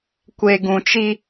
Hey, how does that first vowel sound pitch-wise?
low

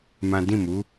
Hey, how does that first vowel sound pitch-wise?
high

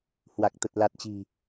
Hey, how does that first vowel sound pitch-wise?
low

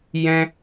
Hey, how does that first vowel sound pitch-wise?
high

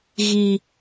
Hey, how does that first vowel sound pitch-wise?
high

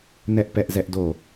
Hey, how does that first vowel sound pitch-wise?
high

